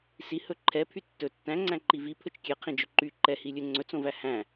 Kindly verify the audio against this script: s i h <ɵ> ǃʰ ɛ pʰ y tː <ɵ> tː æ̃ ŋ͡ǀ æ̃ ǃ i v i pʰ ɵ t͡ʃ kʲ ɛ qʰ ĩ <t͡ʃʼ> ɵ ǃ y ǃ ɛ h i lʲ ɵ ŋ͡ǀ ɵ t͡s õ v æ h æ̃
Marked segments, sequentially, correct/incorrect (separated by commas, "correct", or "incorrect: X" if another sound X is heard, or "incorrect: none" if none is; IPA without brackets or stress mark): correct, correct, incorrect: d͡ʒ